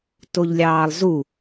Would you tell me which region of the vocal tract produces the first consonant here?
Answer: tongue tip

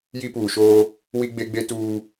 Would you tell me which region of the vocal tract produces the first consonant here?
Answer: palate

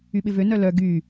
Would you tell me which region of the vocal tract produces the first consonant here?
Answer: lips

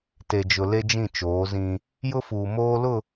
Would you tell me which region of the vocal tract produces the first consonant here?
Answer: tongue tip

